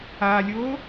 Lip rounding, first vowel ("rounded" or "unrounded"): unrounded